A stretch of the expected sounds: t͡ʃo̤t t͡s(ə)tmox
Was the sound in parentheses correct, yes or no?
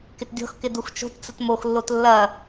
yes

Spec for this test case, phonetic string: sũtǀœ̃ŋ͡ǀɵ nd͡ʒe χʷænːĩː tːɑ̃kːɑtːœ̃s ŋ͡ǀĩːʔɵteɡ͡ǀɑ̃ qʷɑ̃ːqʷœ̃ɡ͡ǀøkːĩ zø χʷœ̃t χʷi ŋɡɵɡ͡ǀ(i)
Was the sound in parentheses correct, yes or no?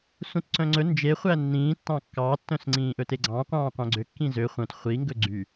no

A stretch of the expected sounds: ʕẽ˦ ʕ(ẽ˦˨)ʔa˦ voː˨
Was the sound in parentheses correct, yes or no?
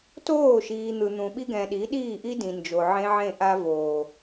yes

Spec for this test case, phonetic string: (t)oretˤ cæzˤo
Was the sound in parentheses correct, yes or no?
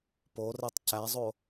no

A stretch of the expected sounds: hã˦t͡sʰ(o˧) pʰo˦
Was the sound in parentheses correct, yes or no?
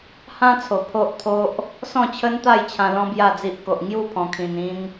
no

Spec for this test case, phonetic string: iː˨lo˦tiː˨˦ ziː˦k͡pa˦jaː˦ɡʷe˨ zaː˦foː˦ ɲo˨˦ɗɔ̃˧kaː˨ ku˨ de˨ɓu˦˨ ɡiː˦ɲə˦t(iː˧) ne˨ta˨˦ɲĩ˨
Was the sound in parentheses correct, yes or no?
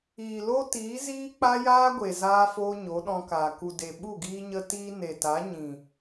no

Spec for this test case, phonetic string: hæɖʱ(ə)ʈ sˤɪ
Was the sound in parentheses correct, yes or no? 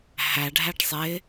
no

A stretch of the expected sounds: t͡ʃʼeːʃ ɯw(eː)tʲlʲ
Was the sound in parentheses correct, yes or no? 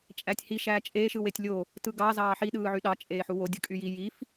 no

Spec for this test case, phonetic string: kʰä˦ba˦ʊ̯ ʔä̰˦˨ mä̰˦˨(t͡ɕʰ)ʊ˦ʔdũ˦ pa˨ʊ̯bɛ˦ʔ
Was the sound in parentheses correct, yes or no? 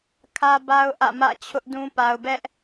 yes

